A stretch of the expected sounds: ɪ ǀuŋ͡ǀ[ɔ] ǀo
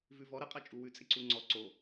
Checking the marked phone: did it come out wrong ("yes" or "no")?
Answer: no